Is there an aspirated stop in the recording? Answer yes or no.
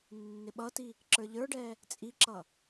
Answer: no